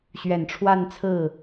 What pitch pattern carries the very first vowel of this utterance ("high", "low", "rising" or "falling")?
low